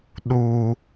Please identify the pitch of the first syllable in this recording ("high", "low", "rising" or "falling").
low